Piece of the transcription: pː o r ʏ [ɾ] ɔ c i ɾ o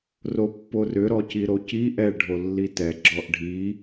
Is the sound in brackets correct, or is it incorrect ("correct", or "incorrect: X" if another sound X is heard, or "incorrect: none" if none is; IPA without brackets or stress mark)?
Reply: correct